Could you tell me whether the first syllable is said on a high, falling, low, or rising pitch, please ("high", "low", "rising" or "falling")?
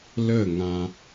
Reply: falling